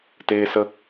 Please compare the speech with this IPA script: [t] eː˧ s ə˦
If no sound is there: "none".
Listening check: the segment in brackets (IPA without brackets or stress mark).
t